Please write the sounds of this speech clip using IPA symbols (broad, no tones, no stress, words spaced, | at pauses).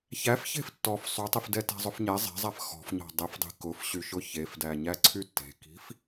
çæfçe̤f tːɔf sˤytˤifdɛ tæ̤zˤʊfɲɛ zˤɛ̤zˤæf xɔ̤fɲɔ̤ dˤefdˤi̤ kʊfɕyʃʊ çefdæɲæ ǀʰytːe̤ki̤f